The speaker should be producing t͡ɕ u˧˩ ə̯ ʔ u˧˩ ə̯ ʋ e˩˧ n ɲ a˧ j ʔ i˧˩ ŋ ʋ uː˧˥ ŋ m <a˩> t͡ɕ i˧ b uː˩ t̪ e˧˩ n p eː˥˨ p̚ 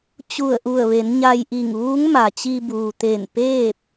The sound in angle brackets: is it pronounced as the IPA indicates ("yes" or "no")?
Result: yes